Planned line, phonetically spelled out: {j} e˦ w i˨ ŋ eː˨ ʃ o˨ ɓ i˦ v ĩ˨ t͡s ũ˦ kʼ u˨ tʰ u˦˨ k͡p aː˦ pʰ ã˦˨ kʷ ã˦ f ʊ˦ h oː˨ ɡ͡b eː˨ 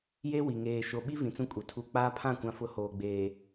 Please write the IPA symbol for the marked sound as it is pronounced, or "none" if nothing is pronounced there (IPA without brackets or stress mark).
j